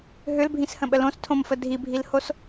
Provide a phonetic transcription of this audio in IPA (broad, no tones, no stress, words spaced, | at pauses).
ɦʏlbʱĩshə̃ɓə lõstʰõmfə dʱibʱilhos